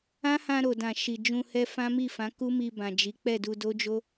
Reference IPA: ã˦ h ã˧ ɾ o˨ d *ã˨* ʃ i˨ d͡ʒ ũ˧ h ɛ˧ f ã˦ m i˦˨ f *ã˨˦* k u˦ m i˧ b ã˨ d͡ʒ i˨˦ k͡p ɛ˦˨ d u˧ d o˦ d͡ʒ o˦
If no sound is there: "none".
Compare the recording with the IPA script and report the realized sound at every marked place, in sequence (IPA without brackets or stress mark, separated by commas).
ã˨, ã˨˦